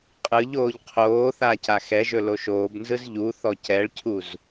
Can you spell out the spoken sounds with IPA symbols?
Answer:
qʼ ɯ ʎ oː ʎ qʰ oː θ a c a x ɛ ʒ ɵ l o ʃ oː b n z ɯ z ʎ u θ ɔ c ɛ ɭ cʰ u z

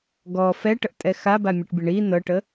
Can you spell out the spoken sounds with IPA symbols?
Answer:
ɡ ɔ f ɛ ʈ ə ʔ tʼ ɛ x a b a mʲ ɤ ʈ bʲ ə ɳ i n ɤ ʈ ə

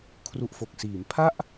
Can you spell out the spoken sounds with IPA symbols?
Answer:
kʰ r u˨˩ ʔ f o˨˩ k̚ s iː˩˦ m pʰ a˥˩ ʔ

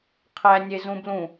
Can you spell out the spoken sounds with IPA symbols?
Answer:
qʰ æ nʲ e z ũ b l ũ

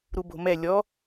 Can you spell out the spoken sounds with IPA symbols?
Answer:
ɾ u b o̤ m ɛ lʲ ɔ

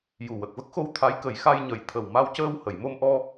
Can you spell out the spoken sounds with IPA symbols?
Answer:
j u˨˩ w ə˨˩ k̚ v ə˦˥ k̚ x o˧ w t̪ʰ a˧˥ j k ə˨˩˦ j x a˧ j ɲ ə˨˩ j t̪ʰ ə˨˩ w m a˧ w c əː˧ w h ə˨˩˨ j m o˧ m ʔ ɔ˧

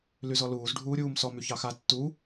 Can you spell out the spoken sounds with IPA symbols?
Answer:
l y z ɔ l uː z ɖʱ uː ɾʲ uː m s ɔ m y ç ɑ x a tː u

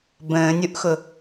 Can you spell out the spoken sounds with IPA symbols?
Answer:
b ə̃ː nʲ u ʔ x ʊ

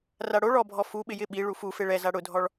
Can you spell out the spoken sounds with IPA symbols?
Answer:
r a ɽ o ɭ ɔ bʱ ɔ f u ɓ ɪ j ɪ ɓ i ɭ u f u f e ɭ ɛ z a ɽ ʊ dʱ ɔ ɭ

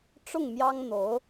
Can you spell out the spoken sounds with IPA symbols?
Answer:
ʈ͡ʂ ʊ˥˩ ŋ m j ɑ˥ ŋ n̪ o˧˥ ʊ̯

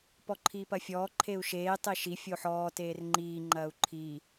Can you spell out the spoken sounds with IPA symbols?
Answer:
p ɔ ǃʰ iː p ɐ fʲ ɔː ǃʰ e u̯ ʃ eː tˤ e ʃ i fʲ o ħ ɔː t eː r ŋ͡ǃ iː ŋ͡ǃ ɐː u̯ ǃʰ i

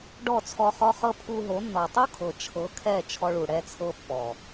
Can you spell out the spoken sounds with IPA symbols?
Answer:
ɖ ɔ˦˨ t͡sʰ ɔ˧ χ ɔ˦ χ ɤ˦ pʰ u˧ ɦ o˨˦ nː ɔ˨ tˤ u˦ kʰ ɤ˨ t͡ʃʰ ɤ˨˦ kʰ ɛ˦˨ t͡ʃʰ ɔ˧ ɭ u˨ ɽ ɛ˧ t͡sʰ ɤ˧ pː ɔ˨

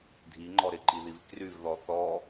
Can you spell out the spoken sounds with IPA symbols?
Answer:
dʱ i ŋ͡ǃ ɔ ɾ ɪ ǃ i ð i v k r y v ð ɔ θ ɔ

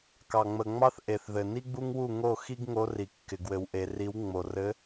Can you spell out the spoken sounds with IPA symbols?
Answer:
k ɑ˨ ŋ͡m ə˨ ŋ͡m ɑ˦ θ ʔ e˨ θ ð ɘ˨ n i˦ ɡ͡b u˦ ŋ w u˦˨ ŋ o˦˨ x i˦ ɡ ŋ o˨˦ r i˨ kː ɪ˨ ɡ w ɘ˨ w ʔ e˨ r i˨˦ w ŋ͡m o˨ r ɘ˨˦

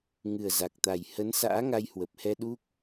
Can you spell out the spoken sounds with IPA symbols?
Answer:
ŋ ɨ˨˩ ə̯ z a˨˩ k̚ t̪ a˨˩ j h ə˨˦ n s a̰ː˧˥ ŋ a˧ j h w ə˨˩ p̚ h ɛ˧ ɗ u˦˥ k̚

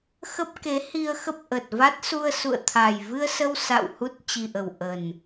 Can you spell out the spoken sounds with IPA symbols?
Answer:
x ə˦˥ p̚ k e˨˦ h i˧ ə̯ x ə˦˥ p̚ ʔ ə˨˩ t̚ v a˦˥ t̚ s u˧ ə̯ s ṵ˧˨ ə̯ t̪ʰ a˨˩ j v ɨ˧ ə̯ s ə˧ w s a̰˧˨ w h u˦˥ t̚ t͡ɕ i˨˩ ʔ ə˨˩ w ʔ ə˨˩ n

